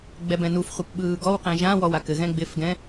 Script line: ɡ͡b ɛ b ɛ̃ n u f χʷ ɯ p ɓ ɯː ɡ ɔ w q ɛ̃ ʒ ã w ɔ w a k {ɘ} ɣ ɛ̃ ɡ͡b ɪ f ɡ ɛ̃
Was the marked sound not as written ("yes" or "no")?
no